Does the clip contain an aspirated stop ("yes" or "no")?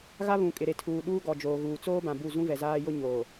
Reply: yes